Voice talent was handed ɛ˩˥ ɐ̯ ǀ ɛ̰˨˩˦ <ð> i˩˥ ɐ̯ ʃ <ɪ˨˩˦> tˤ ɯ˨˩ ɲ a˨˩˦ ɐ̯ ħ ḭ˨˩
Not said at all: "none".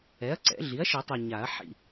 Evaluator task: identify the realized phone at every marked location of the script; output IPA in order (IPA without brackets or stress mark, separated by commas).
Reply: ɮ, i˨˩˦